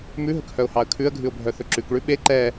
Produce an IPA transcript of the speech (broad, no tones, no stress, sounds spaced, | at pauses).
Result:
m ʉ ɦ ɵ k h œ ʊ̯ h ɑ ə̯ kʰ ʉ ə̯ ɡʱ ʉ ʊ̯ bʱ œ θ ɵ ǁ ʉ k ɭ ʉ ɓ e ǃ ɛ